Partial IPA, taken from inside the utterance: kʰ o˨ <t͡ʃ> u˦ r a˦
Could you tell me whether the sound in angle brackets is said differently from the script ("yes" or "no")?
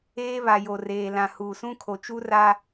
no